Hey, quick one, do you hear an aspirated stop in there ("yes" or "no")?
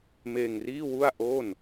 no